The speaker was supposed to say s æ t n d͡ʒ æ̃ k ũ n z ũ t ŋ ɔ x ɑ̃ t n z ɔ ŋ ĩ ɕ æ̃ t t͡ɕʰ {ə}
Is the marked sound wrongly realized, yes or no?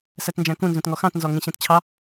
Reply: yes